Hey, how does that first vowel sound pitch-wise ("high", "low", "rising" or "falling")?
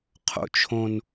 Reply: high